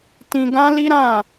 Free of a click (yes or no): yes